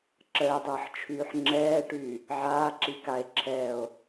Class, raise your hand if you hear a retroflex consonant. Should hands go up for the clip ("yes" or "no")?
yes